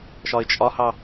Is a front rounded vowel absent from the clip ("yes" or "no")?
yes